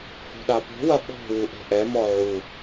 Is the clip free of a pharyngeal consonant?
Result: no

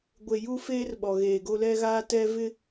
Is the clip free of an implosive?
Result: no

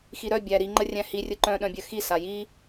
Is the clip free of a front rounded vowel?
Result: no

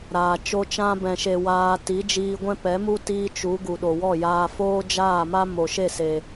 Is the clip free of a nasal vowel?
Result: no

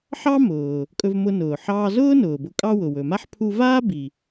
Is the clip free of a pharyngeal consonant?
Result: no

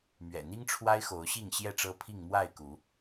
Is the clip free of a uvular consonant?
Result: yes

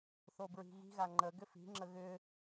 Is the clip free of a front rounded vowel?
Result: no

